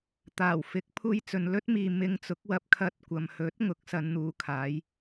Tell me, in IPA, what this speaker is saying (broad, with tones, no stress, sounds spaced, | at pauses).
t̪ aː˨˩ w f ɪ˨˥ k̚ pʰ uː˧ j t͡s ɵ˨ n l ɵ˥ t̚ m iː˨ m ɪ˧ ŋ t͡s ʊ˨˥ k̚ w ɐ˧ p̚ kʰ ɐ˧ t̚ kʷ ɐ˨ m h ɵ˨˥ t̚ ŋ ʊ˨˥ k̚ s ɐ˨˧ n n̪ uː˨ kʰ aː˨˧ j